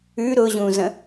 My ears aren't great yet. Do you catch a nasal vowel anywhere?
yes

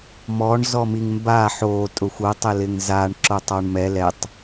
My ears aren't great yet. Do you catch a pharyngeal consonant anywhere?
yes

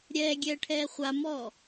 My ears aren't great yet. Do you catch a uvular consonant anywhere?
yes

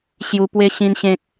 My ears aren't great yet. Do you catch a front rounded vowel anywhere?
no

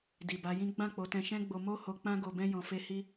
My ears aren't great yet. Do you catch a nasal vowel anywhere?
yes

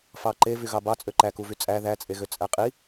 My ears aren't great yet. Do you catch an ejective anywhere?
yes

